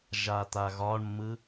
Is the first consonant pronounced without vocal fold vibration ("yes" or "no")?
no